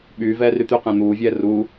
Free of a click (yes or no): yes